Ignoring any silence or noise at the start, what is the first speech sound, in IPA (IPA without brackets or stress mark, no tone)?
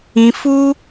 ĩ